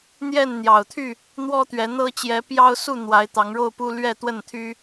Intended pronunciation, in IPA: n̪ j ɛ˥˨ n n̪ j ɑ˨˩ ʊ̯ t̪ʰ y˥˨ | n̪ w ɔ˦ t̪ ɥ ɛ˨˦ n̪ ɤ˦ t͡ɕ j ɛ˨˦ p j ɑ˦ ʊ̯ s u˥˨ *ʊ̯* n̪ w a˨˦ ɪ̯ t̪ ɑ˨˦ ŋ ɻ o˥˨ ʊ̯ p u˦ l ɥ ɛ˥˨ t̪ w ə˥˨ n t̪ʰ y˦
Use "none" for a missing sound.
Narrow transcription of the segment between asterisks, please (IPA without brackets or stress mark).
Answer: none